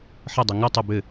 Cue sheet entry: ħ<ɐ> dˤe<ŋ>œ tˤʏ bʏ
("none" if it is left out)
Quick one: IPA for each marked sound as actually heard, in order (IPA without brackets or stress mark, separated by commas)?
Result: ə, ŋ